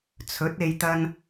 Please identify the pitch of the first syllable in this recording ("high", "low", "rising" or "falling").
rising